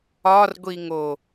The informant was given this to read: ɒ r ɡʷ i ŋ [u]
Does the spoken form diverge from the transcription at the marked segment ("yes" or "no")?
yes